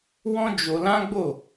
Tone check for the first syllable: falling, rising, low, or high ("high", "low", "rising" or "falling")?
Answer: high